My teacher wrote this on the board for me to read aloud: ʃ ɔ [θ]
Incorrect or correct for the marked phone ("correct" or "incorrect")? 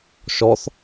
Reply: correct